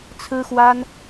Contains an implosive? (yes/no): no